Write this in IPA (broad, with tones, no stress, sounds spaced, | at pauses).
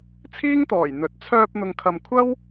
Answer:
t͡sʰ iː˥ ŋ t̪ ɔː˨˩ j n̪ ɵ˨˥ t̚ t͡sʰ œː˧ p̚ n̪ ʊ˨ ŋ kʰ ɐ˨ m kʷʰ ɐ˥ w